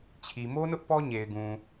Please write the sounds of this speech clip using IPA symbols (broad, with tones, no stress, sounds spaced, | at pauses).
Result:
t͡ɕʰ i˨ m o˦ n ʊ˦ ʔ p ɔ˦ ɲ e˨ ɪ̯ ɡ ũ˨